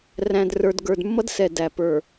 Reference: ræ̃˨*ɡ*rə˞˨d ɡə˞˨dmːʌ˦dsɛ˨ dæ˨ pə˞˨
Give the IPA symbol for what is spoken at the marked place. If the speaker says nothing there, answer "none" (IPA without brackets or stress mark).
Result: d